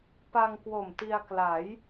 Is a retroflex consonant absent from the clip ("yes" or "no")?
yes